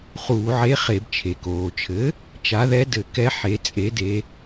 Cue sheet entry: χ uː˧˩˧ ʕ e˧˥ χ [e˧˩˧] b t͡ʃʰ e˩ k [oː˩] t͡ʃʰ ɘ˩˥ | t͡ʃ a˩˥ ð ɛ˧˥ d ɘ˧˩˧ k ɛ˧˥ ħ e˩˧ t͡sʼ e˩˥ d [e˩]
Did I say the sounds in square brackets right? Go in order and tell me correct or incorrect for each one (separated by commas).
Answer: correct, correct, incorrect